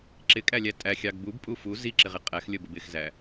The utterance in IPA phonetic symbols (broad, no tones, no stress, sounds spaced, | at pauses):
ǁ ɪ kʼ æ lʲ æ tʼ æ xʲ ɑ ɡ b u b pʼ u f u z i ǁ ɪ ʁ ɪ qʼ æ x lʲ ə b ə b ɪ x z æ